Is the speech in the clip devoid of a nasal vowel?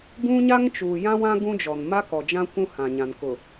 no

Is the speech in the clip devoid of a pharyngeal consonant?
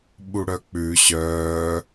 yes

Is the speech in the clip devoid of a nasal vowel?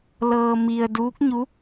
yes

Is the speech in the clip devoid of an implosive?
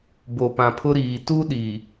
no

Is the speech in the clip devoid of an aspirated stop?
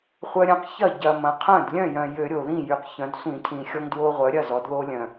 no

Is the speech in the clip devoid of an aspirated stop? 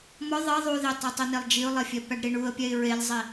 yes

